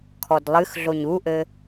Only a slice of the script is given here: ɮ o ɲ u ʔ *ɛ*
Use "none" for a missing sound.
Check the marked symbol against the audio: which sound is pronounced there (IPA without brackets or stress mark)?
ɘ